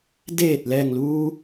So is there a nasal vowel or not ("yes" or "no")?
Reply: no